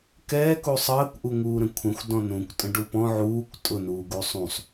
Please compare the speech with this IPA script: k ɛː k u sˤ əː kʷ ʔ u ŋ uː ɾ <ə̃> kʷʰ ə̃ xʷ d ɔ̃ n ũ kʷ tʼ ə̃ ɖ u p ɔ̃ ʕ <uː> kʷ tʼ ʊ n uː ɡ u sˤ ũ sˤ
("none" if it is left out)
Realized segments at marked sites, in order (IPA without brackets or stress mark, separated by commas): ə̃, uː